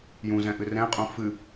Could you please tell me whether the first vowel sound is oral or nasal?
nasal